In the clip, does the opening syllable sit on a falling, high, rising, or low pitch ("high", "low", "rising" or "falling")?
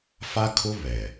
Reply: high